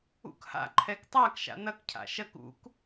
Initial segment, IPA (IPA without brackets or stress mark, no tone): ṵ